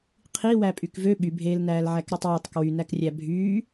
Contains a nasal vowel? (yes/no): no